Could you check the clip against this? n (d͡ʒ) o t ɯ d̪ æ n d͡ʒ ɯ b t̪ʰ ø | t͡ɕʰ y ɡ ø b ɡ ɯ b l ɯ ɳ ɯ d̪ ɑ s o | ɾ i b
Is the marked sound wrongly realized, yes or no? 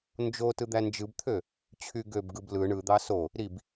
no